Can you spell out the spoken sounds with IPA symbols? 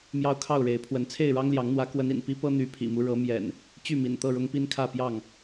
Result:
mjɑ˦ʊ̯kʰɑ˥˨ʊ̯ɻe˨˦ɪ̯pʰwə˨˦n t͡sʰe˥˨ɪ̯ɻɑ˦ŋljɑ˨˦ŋ n̪wä˨˦kwə˨˦n ḭ˨˩n pi˦pɤ˦ n̪y˨˦pʰḭ˨˩mu˦ ɻɤ˨˦ mjɛ̰˨˩n | t͡ɕy˥˨mḭ˨˩nt̪ɤ˥˨ɻʊ˦ŋ pi˦nkʰä˥˨pjɑ˥˨ŋ

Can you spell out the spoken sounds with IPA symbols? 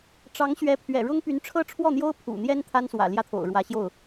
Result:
ʈ͡ʂɑ˧˥ŋɕɥɛ˧˥pʰɥɛ̰˨˩ ɻʊ˥ŋ py˧˥nʈ͡ʂʰɤ˥ ʈ͡ʂʰwɔ˥˩n̪jo˥ʊ̯ pʰṵ˨˩n̪jɛ˥n t̪ʰa˥nswä̰˨˩ljä˥˩t̪ʰo̰˨˩ʊ̯ ɻwä˧˥ɕjo˥˩ʊ̯

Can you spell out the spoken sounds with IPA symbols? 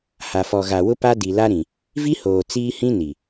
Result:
ha˨fɔ˨ɣa˨ wʊ˦pa˦ di˨la˦ɾĩ˨ | vi˦hoː˨ t͡siː˦hĩ˦ ni˨

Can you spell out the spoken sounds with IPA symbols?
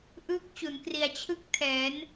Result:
ʔɯː˦˥k̚t͡ɕu˩˦nkri˨˩a̯ t͡ɕʰɯ˥˩k̚tʰɛː˩˦n

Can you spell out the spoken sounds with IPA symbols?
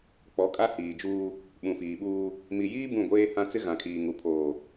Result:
k͡pɔ˨˦kʼa˦hiː˨d͡ʒuː˦ | ɓũ˨fiː˨ɓuː˦ | mi˨jiː˦ bũ˦˨ɡʷeː˦hã˦ t͡sɪ˦ɣã˨kʰiː˨ŋu˨ pʰoː˨

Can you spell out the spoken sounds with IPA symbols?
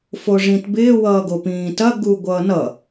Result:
foʐĩtbɪː wʌːɡopĩːtɐ ɡuɡʷʌːnʌ

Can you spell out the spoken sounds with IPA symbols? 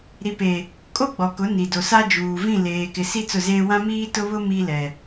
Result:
ɾi˨pe˨ | kʼo˦ɡ͡bɔ˨kʊ˨˦ ni˨do˨sa˦ d͡ʒuː˨vĩ˦˨leː˨ kɪ˨ si˦ t͡sʊ˦˨zeː˦ wã˦miː˦tʊ˦βʊ˦ mi˦lɛ˨

